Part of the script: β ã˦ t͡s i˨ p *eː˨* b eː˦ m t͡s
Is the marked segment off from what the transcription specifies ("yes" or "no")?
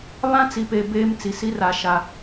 yes